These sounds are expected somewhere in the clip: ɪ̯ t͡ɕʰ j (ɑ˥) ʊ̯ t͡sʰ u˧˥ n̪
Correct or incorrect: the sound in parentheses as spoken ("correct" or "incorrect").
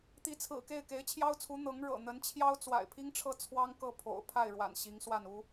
correct